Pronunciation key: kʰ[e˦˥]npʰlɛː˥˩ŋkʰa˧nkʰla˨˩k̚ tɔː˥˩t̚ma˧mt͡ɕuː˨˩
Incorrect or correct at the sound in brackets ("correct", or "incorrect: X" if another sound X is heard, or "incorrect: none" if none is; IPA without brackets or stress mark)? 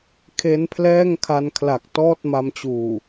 correct